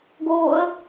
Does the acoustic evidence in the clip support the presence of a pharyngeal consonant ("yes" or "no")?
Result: no